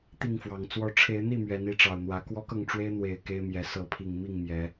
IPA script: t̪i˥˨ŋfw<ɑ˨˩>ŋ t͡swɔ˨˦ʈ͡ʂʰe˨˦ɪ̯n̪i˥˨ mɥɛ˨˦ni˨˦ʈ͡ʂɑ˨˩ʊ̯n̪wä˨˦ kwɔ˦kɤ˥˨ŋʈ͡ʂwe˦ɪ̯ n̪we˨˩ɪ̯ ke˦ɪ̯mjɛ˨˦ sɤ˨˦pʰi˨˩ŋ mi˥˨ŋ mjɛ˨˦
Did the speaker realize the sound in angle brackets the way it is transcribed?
yes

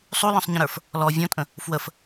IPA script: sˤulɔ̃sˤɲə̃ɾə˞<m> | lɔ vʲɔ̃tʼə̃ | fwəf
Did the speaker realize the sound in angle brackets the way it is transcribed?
no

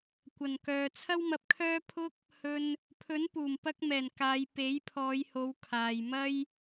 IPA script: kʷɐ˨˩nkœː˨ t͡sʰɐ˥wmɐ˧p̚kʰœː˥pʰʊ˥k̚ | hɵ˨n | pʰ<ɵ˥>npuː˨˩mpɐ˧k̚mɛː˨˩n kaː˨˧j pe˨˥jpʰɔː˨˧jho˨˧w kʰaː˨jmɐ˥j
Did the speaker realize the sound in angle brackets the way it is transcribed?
no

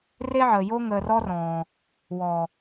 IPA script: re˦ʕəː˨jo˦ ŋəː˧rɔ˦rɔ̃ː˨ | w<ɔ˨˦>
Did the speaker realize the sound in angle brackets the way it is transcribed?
no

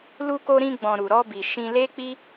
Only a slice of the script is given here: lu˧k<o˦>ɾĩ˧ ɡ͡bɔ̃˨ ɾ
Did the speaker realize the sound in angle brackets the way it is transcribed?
no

